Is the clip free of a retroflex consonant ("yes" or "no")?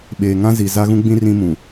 yes